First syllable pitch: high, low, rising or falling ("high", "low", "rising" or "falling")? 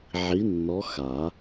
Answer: rising